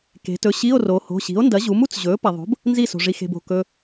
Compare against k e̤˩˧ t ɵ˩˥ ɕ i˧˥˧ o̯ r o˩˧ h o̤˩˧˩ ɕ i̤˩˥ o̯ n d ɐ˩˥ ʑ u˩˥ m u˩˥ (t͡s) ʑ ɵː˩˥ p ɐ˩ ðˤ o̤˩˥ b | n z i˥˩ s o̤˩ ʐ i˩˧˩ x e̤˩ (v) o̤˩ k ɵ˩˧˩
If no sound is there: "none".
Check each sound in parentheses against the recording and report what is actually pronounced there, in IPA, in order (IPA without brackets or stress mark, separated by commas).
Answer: t͡s, b